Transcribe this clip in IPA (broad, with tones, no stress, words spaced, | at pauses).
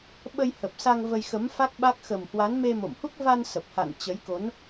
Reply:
ɓə˧jhə˨˩p̚sa˧ŋ və˧jxə˨˦mfa˦˥k̚ɓa˦˥k̚ xə˨˩mhwa˨˦n me˧mo̰˧˨mhu˦˥k̚ va˧nsə˨˩p̚ha̰˧˨n t͡ɕə˨˦jko˨˦n